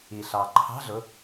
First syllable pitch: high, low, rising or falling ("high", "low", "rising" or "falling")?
low